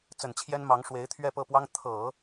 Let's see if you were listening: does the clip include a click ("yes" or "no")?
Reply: no